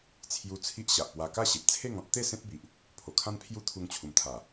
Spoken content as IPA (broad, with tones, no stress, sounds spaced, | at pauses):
t͡sʰ j u˧ t͡sʰ i˦ ʔ ɕ a˨ ʔ p w a˧ k a˥˧ ɕ e˨ p̚ t͡sʰ e˥˧ ŋ ɔ̃˦ t̚ t̪ e˥˧ s ẽ˦ t̚ b i˨ ʔ | pʰ o˨˩ kʰ ã˦ n pʰ j u˦ t̪ʰ u˧ ŋ t͡ɕʰ u˨˩ m t̪ʰ a˨˩